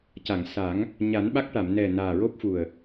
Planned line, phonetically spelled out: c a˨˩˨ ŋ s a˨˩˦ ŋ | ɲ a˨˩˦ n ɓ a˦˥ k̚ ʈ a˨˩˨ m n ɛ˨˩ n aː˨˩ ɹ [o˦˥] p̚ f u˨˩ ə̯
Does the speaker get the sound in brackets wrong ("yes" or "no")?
no